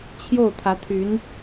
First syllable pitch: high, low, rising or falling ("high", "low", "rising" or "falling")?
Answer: falling